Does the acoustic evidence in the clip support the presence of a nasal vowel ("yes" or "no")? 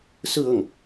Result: no